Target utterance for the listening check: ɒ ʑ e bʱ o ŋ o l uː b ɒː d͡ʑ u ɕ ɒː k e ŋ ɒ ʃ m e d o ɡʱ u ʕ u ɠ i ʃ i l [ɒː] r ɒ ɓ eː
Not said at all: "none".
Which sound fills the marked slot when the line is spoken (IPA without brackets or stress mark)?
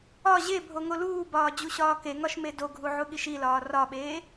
ɒː